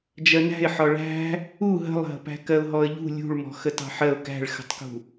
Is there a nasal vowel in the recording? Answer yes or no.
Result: no